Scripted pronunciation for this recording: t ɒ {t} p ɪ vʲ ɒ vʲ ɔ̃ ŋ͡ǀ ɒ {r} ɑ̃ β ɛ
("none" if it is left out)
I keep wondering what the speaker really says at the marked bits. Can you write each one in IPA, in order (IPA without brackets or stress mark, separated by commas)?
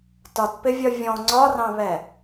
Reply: t, r